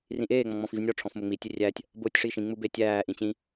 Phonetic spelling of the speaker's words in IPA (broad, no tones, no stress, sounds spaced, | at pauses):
r ĩ ʔ eː ŋ͡m ɔ̃ ŋ͡m ɔ̃ f i v nʲ ɔ ʈ͡ʂʰ ɔ̃ f m ʊ ŋ͡m i tʲ e rʲ æ tʲ | b ʊː tʲ ʂ i ʃ ĩ ŋ͡m u b e tʲ æː ʔ ĩ t͡ɕ ĩ